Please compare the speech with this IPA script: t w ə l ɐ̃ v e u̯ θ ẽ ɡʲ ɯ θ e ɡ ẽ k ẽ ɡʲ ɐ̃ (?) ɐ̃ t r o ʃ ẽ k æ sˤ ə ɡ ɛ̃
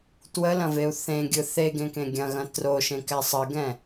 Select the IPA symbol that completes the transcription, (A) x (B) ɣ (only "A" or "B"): B